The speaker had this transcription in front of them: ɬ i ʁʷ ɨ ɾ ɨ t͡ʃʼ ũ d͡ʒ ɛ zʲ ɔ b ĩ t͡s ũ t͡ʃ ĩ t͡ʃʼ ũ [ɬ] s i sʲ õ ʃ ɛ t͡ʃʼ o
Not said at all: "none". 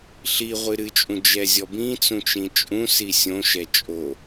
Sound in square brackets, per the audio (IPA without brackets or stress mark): none